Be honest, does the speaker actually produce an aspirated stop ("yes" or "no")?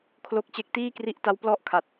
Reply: yes